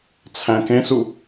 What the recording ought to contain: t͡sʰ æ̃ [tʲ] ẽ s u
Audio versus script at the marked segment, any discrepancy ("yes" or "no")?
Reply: yes